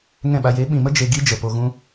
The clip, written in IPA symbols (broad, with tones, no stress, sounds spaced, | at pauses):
ŋ ɛ̃˦˨ ɓ a˧ j e˨˦ ɓ ĩ˨ m ə˦ d͡ʒ e˧ ɡ i˦ d͡ʒ ə˨ p o˧ ɣ ũ˦